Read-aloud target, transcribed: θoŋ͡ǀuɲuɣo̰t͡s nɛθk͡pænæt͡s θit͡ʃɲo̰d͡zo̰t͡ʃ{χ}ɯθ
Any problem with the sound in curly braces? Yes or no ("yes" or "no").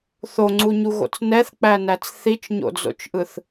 yes